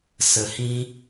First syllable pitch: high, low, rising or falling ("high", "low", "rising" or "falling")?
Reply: low